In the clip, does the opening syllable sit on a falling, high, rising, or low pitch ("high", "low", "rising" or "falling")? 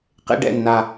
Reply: high